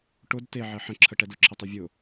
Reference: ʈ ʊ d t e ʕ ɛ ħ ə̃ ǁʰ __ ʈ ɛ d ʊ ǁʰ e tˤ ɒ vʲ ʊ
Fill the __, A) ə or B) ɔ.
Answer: A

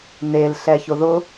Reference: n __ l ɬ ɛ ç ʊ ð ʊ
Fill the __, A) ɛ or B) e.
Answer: B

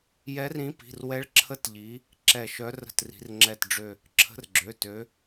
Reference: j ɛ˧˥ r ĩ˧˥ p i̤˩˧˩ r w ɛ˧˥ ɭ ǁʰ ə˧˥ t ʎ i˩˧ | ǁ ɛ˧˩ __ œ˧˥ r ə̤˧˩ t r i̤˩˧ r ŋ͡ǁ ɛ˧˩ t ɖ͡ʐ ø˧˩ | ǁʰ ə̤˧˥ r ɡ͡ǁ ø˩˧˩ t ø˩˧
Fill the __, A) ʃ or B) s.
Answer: A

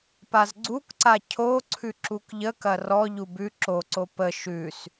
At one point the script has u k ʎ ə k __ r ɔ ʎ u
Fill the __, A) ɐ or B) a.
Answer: A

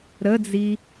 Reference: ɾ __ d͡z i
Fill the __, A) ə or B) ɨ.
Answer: A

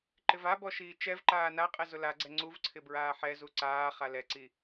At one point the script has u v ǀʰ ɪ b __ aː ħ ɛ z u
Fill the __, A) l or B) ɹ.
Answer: B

